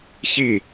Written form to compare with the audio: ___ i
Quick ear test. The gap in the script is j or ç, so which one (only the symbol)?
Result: ç